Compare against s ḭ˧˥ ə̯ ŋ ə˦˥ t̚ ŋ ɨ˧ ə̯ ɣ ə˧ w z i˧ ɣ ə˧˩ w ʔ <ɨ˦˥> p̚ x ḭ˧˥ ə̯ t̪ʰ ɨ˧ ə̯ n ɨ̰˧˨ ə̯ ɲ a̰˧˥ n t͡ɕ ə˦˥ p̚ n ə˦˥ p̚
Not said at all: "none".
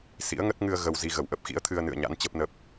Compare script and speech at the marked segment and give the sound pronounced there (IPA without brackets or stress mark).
ə˦˥